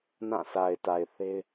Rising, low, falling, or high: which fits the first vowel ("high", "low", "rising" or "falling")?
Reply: falling